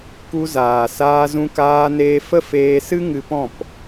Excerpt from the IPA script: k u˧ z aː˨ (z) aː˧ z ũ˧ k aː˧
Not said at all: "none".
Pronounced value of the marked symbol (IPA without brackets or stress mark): s